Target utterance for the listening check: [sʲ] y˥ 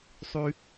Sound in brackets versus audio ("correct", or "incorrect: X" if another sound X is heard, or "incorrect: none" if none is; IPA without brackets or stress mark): incorrect: sˤ